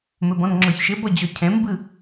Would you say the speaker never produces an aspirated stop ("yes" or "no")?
no